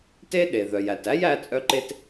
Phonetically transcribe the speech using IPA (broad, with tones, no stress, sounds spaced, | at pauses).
t e˥ ɗ e˩ ð œ˩ j æ˩ t æ˥ j æ˧ t͡sʼ œ˧ ǃ e˧ t